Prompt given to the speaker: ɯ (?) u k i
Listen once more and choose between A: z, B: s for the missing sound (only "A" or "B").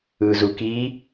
A